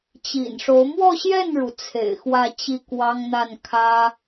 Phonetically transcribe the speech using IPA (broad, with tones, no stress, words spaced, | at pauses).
t͡ɕḭ˨˩nʂo˧˥ʊ̯ mwɔ˥˧ɕjɛ˥˩nɻu˩ t͡sʰḛ˨˩ɪ̯xwä˥˧t͡ɕi˥˩ kwɑ˥ŋn̪a˥˩n kʰä˥